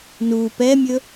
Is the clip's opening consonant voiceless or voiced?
voiced